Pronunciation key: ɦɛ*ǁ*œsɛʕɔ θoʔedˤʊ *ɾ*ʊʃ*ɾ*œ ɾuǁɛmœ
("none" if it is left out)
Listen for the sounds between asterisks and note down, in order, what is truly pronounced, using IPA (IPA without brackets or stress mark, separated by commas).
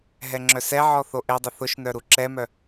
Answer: ŋ͡ǁ, θ, n